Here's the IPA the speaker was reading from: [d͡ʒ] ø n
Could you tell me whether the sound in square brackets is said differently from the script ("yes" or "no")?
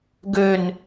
yes